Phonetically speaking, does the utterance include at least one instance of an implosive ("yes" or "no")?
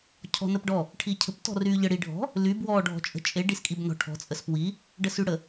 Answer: no